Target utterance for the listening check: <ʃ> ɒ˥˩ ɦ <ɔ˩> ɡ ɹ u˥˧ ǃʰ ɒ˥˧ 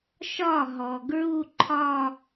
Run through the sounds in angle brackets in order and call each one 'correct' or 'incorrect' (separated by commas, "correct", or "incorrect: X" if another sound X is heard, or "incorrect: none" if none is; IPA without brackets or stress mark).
correct, correct